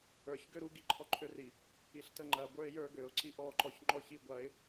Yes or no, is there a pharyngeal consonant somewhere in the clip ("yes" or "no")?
no